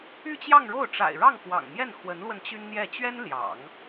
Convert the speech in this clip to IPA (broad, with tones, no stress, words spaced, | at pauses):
y˥˧t͡ɕjɑ˥˧ŋɻo˥˩ʊ̯ ʈ͡ʂa̰˨˩ɪ̯ɻɑ˥˩ŋxwɑ̰˨˩ŋ mjɛ˥˩nxwə˧˥nlwə˧n t͡ɕy˥nn̪jɛ˥˩ t͡ɕɥɛ˥n ljɑ̰˨˩˦ŋ